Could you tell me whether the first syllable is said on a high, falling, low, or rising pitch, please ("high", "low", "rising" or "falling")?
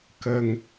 low